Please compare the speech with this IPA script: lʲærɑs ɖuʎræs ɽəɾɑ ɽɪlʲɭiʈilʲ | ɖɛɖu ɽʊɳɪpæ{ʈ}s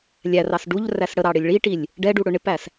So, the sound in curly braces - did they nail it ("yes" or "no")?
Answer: no